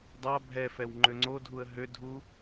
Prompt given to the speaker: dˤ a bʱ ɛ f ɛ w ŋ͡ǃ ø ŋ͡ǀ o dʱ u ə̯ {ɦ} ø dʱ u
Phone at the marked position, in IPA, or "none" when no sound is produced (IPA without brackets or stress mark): ɦ